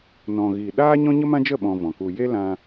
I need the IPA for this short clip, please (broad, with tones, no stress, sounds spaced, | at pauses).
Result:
n ɔ̃˨ ɣ iː˨ ɗ aː˦ ɲ ɔ̃˦ ɲ ə˦ m ã˦ d͡ʒ ə˦˨ ɓ ɔ̃˧ v ɔ̃˨ k u˧ j e˦ l ã˧